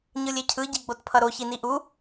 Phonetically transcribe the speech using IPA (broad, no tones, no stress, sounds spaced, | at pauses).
ɲ ɯ lʲ e cʰ ɯ ɟ i ɡ͡b o t pʰ ʌ ɾ o ç i n i ʔ u